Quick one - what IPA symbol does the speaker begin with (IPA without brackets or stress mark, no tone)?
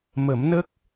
m